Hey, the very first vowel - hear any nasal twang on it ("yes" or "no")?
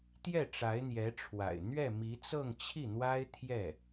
no